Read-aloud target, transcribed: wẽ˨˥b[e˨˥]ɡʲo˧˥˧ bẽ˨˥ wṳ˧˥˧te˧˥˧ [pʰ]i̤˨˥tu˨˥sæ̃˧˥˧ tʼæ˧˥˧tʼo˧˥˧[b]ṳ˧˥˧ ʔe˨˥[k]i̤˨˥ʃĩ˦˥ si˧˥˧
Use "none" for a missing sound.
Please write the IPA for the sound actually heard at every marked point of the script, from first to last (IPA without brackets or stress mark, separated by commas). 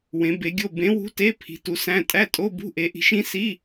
e˨˥, pʰ, b, ʔ